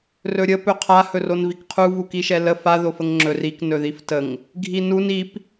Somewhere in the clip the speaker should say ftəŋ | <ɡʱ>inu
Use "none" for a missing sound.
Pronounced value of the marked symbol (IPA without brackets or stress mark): ɡʱ